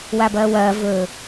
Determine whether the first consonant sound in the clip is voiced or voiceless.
voiced